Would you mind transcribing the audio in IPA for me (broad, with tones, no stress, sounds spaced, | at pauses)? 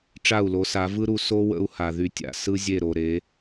ʈ͡ʂ a˦˨ u̯ l o˨˦ s a˨˦ v ɯ˦ ɾ u˧ s o˦ w ə̰˦ u̯ h a˨ ð y˧ tʲ a̰˨ s ɯ˦ zʲ e˦˨ ɾ o˨ ɾ e˨˦